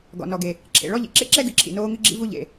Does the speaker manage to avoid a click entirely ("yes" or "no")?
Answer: no